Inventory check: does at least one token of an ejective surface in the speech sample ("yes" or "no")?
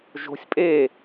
yes